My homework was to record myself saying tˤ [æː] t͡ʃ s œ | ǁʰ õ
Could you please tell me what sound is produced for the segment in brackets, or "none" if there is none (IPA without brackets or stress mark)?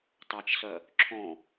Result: æ